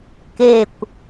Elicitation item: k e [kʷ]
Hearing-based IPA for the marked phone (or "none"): kʷ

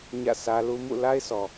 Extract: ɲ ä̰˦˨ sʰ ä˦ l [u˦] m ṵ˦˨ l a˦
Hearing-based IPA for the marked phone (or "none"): u˦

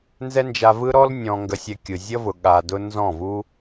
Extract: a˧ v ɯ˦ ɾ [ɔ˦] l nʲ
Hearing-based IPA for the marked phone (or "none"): ɔ˦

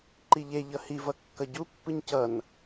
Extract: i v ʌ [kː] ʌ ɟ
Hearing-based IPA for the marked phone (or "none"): kː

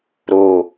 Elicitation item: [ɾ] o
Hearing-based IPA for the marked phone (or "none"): ɾ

